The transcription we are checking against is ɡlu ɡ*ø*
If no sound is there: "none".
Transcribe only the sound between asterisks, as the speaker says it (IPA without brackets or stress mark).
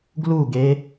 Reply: e